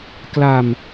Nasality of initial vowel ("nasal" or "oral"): oral